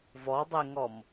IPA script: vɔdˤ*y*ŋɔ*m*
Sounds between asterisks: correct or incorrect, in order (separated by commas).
incorrect, correct